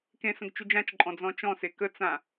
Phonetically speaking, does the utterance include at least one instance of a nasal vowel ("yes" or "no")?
yes